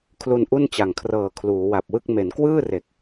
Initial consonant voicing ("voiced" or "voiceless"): voiceless